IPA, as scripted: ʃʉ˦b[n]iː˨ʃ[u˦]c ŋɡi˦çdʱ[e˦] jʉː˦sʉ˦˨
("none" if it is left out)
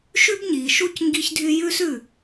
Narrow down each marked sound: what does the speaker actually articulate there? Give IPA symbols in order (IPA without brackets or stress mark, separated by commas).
ɲ, u˦, y˦